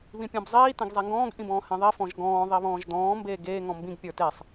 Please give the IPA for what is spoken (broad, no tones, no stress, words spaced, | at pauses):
βĩpʲɔ̃bzˤiː tẽɡzˤeŋɡɔ̃ːɡ ʔĩbɔ̃ːhẽðˤi fɔ̃ʒɡɔ̃ː ðˤiβɔ̃ːʒdɔ̃ː mbeːɡeː ŋɔ̃mbĩɡ pʲə˞tesˤ